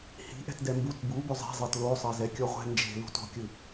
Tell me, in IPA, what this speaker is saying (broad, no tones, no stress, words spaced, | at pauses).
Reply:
hi̤ʔɛ̤t dɛmbut bu bɵzˤe̤zˤɤt losˤɤ zɛkʲɔʁʷɛ̤ nd͡ʒe̤ lṳto̤kʲɯ